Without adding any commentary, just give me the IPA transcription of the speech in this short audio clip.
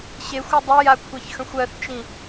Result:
ɕ e xʷ ɨ dˤ ə j a kʷʰ ɛ ç x ə̃ xʷ ɜ θ t͡ʃ ĩ

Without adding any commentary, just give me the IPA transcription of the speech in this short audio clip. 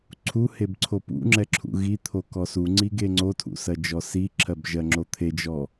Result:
ǀʰ u h e b ǀʰ o p ṵ ŋ͡ǁ ɛ ǁʰ ṵ ɣ i t̪ʰ o k ɔ s u ŋ͡ǀ i ɡ e ŋ͡ǀ o tʰ ṵ s ɜ d͡ʒ ɔ s i ǁʰ ɜ b ʒ ɜ ŋ͡ǁ o t̪ʰ e d͡ʒ ɔ

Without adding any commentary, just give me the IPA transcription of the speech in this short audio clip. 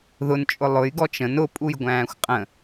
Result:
ð ʊ n t͡ʃʼ ʊ lˠ ʊ j ɡ ɔ t͡ʃ ə̃ n ʊ pʼ u j ɡʷ æ̃ː xʷ qʼ ə̃

